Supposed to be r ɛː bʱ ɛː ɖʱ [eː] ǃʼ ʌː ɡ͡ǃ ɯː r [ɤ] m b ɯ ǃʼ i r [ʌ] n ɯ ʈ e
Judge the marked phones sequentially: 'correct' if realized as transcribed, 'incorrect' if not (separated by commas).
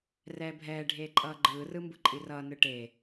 correct, incorrect, incorrect